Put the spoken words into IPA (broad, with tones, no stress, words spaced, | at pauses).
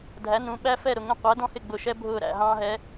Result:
dʱæ˩˧nũ˩˧ ɓæ˧fɛ˧˩ ɾʊ˧˩ŋə̃˧˩ qʷæ˩˧dɔ̃˧hɪ˧˩ ɡ͡bʊ˧˩ʃɛ˥ bʱʊː˧˩ ɾæ̰˧˩ɦɑ̃ː˧ ɦɛ˩˧